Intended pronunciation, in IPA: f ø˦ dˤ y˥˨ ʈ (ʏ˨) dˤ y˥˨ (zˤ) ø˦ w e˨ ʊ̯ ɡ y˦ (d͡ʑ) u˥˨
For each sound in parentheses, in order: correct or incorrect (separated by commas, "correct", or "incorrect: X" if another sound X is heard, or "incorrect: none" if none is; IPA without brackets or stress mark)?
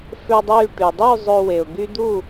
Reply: incorrect: y˨, correct, incorrect: d̪